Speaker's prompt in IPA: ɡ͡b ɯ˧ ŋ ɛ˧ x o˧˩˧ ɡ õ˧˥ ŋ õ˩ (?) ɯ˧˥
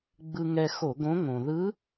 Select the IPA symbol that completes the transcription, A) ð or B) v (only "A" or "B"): A